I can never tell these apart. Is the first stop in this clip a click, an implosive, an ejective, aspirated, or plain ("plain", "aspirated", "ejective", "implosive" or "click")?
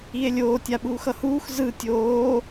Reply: plain